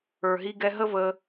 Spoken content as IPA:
ə˞˨ ɦ i˧ ɡ ɛ˧ ɦ ə˦ v ə˧

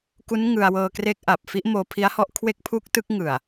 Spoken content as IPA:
k u˦˥ n ŋ ɯ˧ a̯ w ɤː˧ k r e˦˥ k̚ ʔ a˨˩ p̚ f i˥˩ ʔ m oː˧ pʰ i˦˥ a̯ h ɔ˦˥ ʔ kʰ w e˥˩ k̚ pʰ u˥˩ k̚ t ɯ˥˩ k̚ ŋ ɯ˨˩ a̯

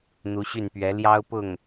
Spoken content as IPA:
n̪ u˧˥ ɕ y˥˩ n p ɥ ɛ˧˥ l j ɑ˥ ʊ̯ p ʊ˥˩ ŋ

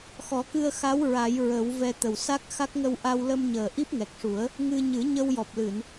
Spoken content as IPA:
x ɔ˨˩˦ k ɨ˧ ə̯ x a˧˥ w ɹ a˨˩˦ j ɹ ə˨˩˦ w v ɛ˧ t̪ ə˨˩ w s a˦˥ k̚ x a˦˥ k̚ ŋ ə˧ w ʔ a˧ w l ə˧ m ɲ əː˨˩ ʔ i˦˥ p̚ ŋ ɛ˨˩ k̚ ʂ u˨˩˦ ə̯ | ŋ ɨ˧ ɲ ɨ˨˩˦ ɲ ə˧ w j ɔ˨˩ p̚ l ɨ˨˩˨ n

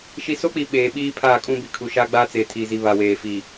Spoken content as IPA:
ʃ i˨ s o˦ k͡p i˨ ɓ eː˨ ɓ iː˦ pʰ aː˦˨ kʼ ũ˦ b i˨ kʰ u˨ ʃ aː˦ ɡ͡b aː˦ t͡s eː˨ tʰ iː˨ z i˨ β a˨ w eː˨ f i˨

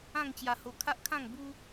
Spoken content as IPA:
ã˥˧ ŋ t͡ɕ j a˧ h o˧ kʰ a˦ ʔ kʰ ã˥˧ ŋ b u˦

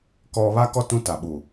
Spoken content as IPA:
k ɔ˦ β a˦ k ɔ˦ t ũ˦ t a˨ ɓ u˨

